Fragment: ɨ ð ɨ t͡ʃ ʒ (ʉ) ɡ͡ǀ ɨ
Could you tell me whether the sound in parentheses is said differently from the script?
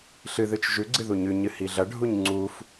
no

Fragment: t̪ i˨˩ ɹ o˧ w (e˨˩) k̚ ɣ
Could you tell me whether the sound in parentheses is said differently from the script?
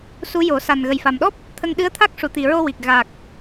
yes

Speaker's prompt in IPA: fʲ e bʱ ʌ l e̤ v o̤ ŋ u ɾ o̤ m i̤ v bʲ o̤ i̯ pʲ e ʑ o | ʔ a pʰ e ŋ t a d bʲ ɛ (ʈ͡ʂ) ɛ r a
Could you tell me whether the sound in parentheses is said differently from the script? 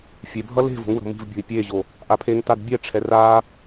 yes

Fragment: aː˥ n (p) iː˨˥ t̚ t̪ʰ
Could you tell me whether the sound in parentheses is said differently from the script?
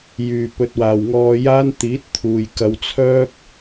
yes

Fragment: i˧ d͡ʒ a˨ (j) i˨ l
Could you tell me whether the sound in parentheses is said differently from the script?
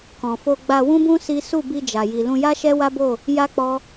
no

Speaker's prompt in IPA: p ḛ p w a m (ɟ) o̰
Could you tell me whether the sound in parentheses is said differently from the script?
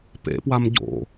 no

